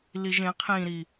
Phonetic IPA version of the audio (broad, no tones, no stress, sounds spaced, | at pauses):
l i ʒ ẽ qʰ ĩ ɾ i